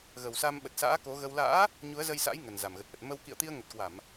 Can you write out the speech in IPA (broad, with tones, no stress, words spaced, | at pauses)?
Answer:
ɣə˨˩wsa˧mɓə˨˩t̚ sa̰ː˧˥ ko˨˦ɣə˧w la̰ː˧˥ | ɲu˨˦ə̯zə˧jsa̰˧˥j ŋə˨˩n za˨˩mɣə˨˩t̚ʔə˨˩t̚ mə˧w kḭ˧˨ə̯t̪i˧ə̯ ŋə˨˩t̚kwa˧˩˨m